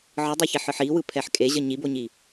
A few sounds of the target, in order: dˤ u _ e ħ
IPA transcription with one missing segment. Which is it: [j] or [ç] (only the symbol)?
ç